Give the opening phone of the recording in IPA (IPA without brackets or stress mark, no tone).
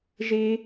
ʒ